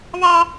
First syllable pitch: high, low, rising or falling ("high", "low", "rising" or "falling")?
high